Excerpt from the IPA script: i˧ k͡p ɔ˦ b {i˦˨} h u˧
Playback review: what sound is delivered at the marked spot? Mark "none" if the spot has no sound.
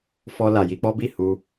i˦˨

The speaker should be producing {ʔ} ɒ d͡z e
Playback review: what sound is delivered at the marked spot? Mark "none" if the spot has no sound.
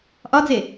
ʔ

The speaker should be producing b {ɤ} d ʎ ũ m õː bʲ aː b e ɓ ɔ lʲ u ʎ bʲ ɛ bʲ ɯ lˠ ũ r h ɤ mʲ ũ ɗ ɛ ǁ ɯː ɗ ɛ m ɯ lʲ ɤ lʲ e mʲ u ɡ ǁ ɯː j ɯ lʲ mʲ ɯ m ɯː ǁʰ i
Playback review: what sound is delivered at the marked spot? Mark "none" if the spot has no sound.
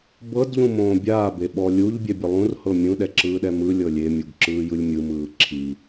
ɤ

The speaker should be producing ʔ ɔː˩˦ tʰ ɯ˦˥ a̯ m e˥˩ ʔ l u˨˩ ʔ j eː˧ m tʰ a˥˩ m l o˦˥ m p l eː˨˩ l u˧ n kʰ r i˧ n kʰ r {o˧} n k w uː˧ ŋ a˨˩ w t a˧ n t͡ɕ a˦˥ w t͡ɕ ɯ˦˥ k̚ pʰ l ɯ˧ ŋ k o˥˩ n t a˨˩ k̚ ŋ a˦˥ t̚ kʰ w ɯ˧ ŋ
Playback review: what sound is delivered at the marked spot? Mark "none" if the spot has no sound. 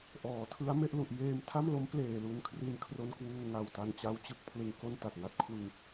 o˧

